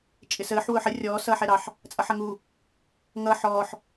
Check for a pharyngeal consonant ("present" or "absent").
present